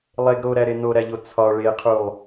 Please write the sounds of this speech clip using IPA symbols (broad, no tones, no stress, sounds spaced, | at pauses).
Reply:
lˠ e ɡ ɾ o ɾ æ ɾ e n o ɾ æ ʎ o t͡sʰ ɒ ɭ e qʰ u lˠ